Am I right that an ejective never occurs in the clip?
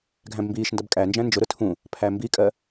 no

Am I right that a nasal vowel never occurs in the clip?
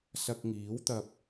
yes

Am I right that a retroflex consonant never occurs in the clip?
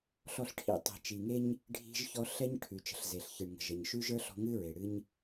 no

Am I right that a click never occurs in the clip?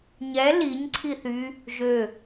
no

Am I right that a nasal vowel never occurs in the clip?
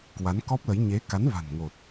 yes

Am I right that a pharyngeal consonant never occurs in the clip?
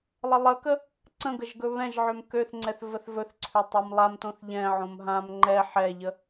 no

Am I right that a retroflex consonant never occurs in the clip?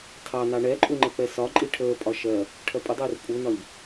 no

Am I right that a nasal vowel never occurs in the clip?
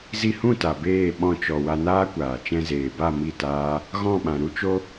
no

